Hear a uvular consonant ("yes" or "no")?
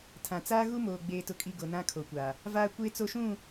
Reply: no